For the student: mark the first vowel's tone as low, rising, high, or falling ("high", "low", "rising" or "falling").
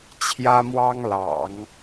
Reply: high